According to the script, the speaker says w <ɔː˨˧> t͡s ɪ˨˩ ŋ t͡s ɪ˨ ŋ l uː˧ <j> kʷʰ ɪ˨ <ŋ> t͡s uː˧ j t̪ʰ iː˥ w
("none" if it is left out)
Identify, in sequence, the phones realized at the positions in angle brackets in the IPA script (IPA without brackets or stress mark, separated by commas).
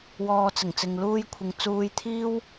ɔː˧, j, ŋ